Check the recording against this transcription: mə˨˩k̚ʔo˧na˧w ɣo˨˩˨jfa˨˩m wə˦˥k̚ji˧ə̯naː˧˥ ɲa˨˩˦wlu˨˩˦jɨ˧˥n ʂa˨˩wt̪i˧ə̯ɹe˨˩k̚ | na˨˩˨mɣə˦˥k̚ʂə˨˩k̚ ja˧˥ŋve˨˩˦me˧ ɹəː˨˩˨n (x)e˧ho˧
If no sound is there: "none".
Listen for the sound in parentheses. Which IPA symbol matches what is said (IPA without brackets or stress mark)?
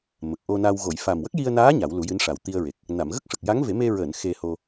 x